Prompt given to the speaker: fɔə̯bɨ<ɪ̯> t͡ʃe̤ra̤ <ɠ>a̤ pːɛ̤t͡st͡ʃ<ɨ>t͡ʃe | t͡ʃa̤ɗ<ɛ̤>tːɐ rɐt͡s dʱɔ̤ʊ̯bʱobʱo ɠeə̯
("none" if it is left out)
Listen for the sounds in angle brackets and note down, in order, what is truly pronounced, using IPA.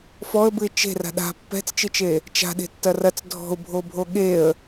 ɪ̯, ɗ, ɨ, e̤

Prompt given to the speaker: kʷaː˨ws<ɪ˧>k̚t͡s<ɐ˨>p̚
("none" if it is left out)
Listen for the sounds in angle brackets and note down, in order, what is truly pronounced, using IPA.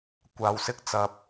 ɪ˧, ɐ˨

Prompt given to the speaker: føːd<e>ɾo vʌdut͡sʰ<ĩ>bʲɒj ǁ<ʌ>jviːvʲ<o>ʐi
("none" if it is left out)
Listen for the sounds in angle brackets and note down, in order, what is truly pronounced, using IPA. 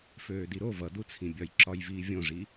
i, ĩ, ɒ, õ

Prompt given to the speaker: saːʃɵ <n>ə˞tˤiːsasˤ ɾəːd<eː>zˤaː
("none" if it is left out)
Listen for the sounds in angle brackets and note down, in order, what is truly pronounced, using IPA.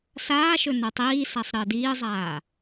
n, iː

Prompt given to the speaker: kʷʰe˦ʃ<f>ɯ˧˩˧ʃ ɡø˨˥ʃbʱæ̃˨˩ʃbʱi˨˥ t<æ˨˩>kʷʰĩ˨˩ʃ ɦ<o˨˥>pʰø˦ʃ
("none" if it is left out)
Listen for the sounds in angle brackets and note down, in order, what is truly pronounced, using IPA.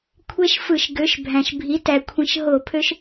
f, æ˨˩, o˧˩˧

